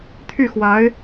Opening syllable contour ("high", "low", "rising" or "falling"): falling